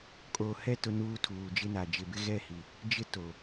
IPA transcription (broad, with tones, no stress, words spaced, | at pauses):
kʼoː˨hɛ˦˨ tʊ˦ nuː˦tʰuː˨d͡ʒɪ˦na˨ d͡ʒɪ˨bɪ˦ɣɛ˦˨hi˨ | d͡ʒɪ˦ to˨